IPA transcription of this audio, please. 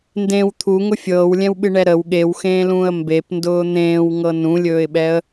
n d ẽ w t̪ʰ u ŋ ʊ fʲ ɤː w lʲ ɛ̃ w ɓ ɨ ɳ ɛ ɾ ə w ɠ e w x ẽː l ũː ə̯ m b e p n d ʊː n̪ ẽː w ŋ ɤ n ũ lʲ ɵː ɪ̯ ɓ ɛ ə̯

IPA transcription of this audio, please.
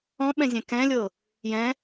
ɔ̃ ɓ ɛ̃ zʲ ɛ̃ k ɛ̃ lʲ ɤ | j ɛ̃

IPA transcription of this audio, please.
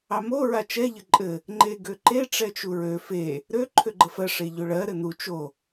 ɑ m o ɹ a t͡ʃ ɛ ʎ ə ǃʼ ɘ | ŋ͡ǃ e ɡ ø ǃ e ʈ͡ʂ ɛ t͡ʃ u ɹ ø f e | ɾ ø ǃʰ ø ɡ͡ǃ ə f ɜ ʂ e ʎ ø ɭ ɜ ɾ ɘ n u t͡ʃ o

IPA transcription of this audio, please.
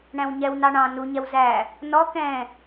ɳ æ̃ w ɲ ɛ w n ɑ ɳ ɑ̃ n u ɲ ɛ w z æ | n ɔ k ɛ̃

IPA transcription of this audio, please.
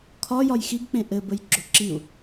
kʰ ɒ j ɒ j x i ɡ k͡p ẽ ʔ ɘ b ə j ɡ͡ǁ o ǁ i u̯

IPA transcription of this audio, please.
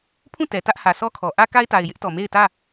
pʰ ũ˦˨ t ɛ˨ t ä˦ ʔ h ä˨ s ɔ˦ kʰ ɔ˨ ʔ ä˦ k a˦ ɪ̯ t a˨ ɪ̯ j ɪ˦ ʔ t ɔ˨ m e˦˨ ɪ̯ t ä˦˨

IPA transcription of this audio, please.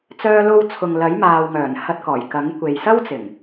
t͡s œː˧ l o˧ w t͡sʰ ʊ˨ ŋ l ɐ˨˥ j m aː˨ w ŋ œː˨˩ n h ɐ˧ t̚ k ɔː˨˩ j k ɐ˨˥ ŋ kʷ e˨ j s ɐ˥ w t͡s ɪ˨˩ ŋ

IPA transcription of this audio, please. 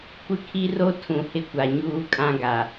kʷ ɪ˦ kʰ i˦ r o˦ tʰ ũ˨ h ɪ˦ kʷ a˨ ɲ uː˦ kʼ ã˦ ɡ a˨

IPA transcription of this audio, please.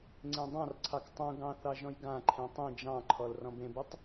ŋ͡ǀ ẽ dˤ ɑ̃ r ǀʰ ɑ k tˤ ũ ɡ ɑ̃ θ ɑ ʒ ɔ̃ j ɡ ã ǃʰ ẽ tˤ ĩ d͡ʒ ɑ̃ ǃʰ ɔ l r ɔ̃ b ẽ b e tˤ

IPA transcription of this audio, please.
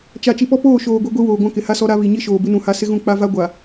t͡ʃ a˨ t͡ʃ i˨ p ɔ˦ p oː˦˨ ʃ oː˨ ɡʷ i˨ ɡʷ i˦ w oː˨ ɡʷ ã˦ k ɪ˨ h a˦ s ɔ˦ ɾ a˦ β i˨ ɲ i˦ ʃ oː˨ b ɪ˦ n ũ˨ h a˦ s ɪ˦ ɣ ũ˦˨ k͡p a˦ v a˦ ɡʷ a˨

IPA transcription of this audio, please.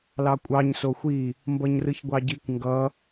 l ɑ kʷʼ ɑ ɲ s o xʷ i | m b ʌ ɲ r ɯ ç ɡʷ ɑ ɟ i kʷ ŋ ɡ ʌ

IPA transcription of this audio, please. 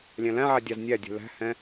lʲ æ̃ l æ̃ ʕ æ dʲ ɑ z nʲ æ dʲ ɛ̤ l æ̤ h ɛ̃

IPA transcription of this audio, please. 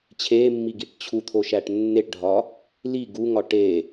t͡ɕʰ e mː i ɡ i ʈ t͡ɕʰ u t̪ʰ o ʃ æ ʈ nː e ʈ ɖʱ ɒ | l i ɡ u ŋ ɒ ʈ e

